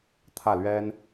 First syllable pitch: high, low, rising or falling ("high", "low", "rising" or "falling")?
falling